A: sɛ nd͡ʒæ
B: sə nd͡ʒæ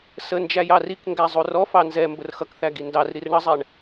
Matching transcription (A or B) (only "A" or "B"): B